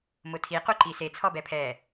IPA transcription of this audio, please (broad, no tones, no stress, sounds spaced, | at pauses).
m ʊ tʰ i q u ǃ i s e t͡sʰ ɔ b ɛ pʰ ɛ